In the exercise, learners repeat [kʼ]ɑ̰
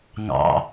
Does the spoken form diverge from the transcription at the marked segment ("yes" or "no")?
yes